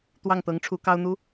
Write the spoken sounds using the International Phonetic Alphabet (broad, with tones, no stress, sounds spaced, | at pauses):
t̪ w ɑ˥˩ ŋ t̪ ɤ˧˥ ŋ ʈ͡ʂʰ u˧˥ k ɑ˥ ʊ̯ n̪ u˥